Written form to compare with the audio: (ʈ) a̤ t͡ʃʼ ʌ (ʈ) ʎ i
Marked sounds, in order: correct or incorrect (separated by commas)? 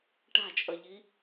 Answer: correct, incorrect